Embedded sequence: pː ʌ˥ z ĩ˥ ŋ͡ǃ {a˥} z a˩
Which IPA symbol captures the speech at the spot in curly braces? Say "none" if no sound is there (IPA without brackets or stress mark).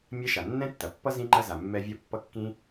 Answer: ɐ˥